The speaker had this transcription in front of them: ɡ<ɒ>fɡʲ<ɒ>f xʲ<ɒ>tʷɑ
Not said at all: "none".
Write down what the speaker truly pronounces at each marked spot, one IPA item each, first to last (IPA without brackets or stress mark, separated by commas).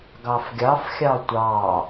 ɑ, ɑ, ɑ